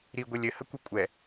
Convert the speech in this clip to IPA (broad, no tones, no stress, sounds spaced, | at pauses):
ɾ i ɡʷ e lʲ ɘ h ə kʷ i kʷʼ ɛ